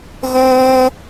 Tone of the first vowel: high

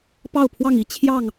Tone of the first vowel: falling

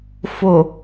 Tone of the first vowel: low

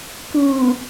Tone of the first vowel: low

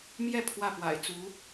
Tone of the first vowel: falling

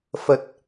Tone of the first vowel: low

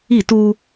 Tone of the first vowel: falling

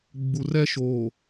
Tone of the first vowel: low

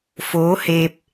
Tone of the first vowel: rising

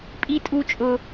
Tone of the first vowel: high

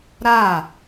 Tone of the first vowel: falling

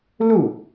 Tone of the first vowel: falling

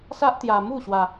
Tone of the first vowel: high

